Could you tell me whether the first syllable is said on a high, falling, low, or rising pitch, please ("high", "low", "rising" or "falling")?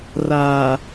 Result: low